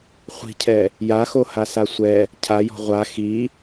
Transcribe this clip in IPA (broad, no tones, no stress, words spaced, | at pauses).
χʷi̤cʰɛ | jaxohasa sʷɛ | cʰajɔ̤ ʁʷa xi